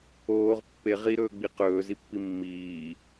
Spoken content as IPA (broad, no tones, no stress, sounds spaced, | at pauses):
oː ʁ pː e ʁ i ɾ ɵː ɡ͡b i q ɵː z i pː i mː iː